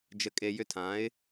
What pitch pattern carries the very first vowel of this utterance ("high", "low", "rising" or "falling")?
low